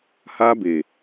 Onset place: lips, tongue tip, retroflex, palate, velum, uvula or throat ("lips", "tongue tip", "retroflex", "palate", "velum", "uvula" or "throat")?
throat